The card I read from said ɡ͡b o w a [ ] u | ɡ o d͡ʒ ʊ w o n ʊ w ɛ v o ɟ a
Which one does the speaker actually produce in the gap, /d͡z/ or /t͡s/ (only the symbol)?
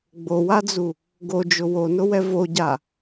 d͡z